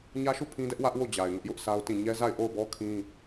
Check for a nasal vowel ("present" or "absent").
present